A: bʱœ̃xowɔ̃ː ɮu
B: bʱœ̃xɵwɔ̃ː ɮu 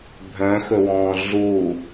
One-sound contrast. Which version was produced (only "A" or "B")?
B